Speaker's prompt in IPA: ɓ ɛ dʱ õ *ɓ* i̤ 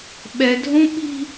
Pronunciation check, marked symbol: correct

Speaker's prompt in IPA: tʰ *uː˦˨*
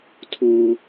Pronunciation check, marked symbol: incorrect: uː˦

